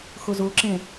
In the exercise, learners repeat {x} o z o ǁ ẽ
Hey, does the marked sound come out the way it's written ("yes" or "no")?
yes